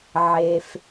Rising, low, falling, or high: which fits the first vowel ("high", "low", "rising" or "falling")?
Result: low